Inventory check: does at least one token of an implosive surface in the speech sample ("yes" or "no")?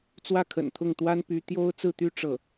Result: no